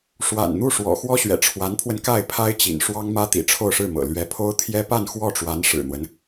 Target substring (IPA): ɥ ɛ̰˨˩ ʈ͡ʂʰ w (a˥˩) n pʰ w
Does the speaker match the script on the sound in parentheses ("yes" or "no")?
no